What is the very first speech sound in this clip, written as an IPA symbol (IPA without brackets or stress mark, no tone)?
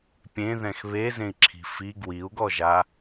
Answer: pʲ